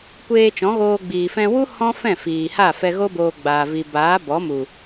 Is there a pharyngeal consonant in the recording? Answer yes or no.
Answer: no